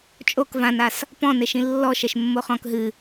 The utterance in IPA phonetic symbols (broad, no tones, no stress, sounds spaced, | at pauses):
t͡ʃʼ o k v ã n a s | p ɔ̃ n e ʃ ĩ lː ɔ ʃ ɛ ʃ mː o χ ɔ̃ k ɦ ɨ